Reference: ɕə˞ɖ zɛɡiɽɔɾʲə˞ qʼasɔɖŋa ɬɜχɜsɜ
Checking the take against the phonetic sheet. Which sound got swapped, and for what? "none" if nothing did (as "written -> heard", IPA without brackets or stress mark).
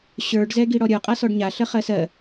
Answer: ŋ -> ɲ